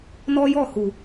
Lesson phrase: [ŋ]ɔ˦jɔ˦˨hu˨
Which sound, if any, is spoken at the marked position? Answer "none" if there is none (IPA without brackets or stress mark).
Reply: n